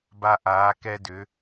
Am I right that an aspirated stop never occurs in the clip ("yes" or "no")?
yes